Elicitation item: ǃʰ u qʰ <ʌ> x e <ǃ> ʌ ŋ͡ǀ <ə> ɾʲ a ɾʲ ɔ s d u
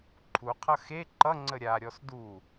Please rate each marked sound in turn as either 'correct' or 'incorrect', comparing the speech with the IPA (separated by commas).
correct, correct, correct